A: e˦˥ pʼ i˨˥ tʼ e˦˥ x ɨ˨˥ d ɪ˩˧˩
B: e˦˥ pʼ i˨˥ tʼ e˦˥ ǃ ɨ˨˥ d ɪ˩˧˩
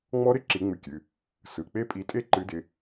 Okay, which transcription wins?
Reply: B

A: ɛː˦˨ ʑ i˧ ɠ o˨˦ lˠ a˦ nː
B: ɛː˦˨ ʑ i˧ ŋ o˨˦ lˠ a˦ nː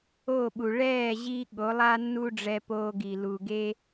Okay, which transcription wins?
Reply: A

